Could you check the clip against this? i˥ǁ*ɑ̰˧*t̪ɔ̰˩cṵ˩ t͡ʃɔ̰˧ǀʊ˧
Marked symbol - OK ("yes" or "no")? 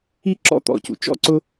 no